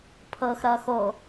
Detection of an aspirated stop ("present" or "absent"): present